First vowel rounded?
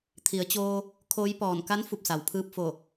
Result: no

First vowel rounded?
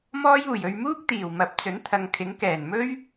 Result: yes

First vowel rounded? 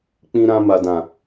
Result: no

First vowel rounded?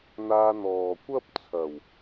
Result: no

